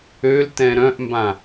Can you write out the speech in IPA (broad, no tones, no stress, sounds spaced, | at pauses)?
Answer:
ø l t ɛ̃ ɾ œ̃ ʔ m b ã